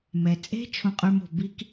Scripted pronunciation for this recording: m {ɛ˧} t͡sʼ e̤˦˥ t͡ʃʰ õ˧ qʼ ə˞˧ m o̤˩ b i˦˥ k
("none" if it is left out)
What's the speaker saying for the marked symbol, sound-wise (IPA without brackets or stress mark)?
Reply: ɛ˩